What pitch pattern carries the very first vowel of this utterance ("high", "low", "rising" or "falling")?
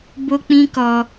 high